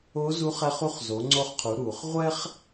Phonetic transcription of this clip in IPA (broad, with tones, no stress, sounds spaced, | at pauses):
o˧˥ z u˧˥ χ ɛ˧ χ u˧˥ χ z o˩˧ ŋ͡ǀ o˧ χ qʰ u˩˧ ɾ uː˩ χ ʁʷ ɛ˥ χ